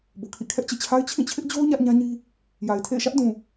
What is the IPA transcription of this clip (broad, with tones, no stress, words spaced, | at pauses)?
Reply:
bo˨kʰḭ˦˨ kʰɛ˦ʔt͡ɕḛ˦˨t͡ɕʰa˦ɪ̯ t͡ɕʰĩ˦˨t͡ɕʰɪ˦ʔd͡ʑo˦ʊ̯ ɲä˦ʔɲã˦ɲi˦ | ja˨ɪ̯ tʰḛ˦˨ɪ̯ʃä˦ʔdũ˨